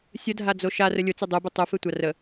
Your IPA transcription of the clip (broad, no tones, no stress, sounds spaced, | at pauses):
sʲ ə dʱ a d͡z o ʃ a r ə lʲ ʊ t͡s ə dˤ u b ʊ tˤ u f e tʷ a r ə